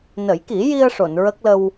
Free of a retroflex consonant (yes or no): no